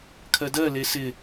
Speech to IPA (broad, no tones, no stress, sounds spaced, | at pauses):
kʰ ɜ d ɜ l e s ɪ